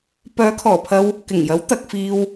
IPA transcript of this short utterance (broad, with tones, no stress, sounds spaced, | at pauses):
p œː˨˥ kʰ ɔː˨˩ pʰ ɐ˧ w | k ɪ˨˩ ŋ j ɐ˨˥ w t̪ ɐ˧ k̚ f iː˧ w